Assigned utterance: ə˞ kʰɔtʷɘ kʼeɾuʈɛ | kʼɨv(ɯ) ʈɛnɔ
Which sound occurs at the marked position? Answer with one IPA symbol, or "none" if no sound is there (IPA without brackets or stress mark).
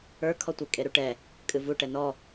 u